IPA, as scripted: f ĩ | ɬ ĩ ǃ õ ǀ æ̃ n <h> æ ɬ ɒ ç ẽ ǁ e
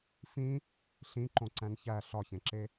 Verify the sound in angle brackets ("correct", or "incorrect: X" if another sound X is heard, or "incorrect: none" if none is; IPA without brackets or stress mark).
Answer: incorrect: ç